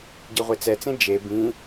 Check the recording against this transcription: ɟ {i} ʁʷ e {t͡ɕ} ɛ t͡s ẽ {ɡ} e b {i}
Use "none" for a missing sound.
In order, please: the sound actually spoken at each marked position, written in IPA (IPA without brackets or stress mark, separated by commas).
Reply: i, t͡s, d͡ʒ, ĩ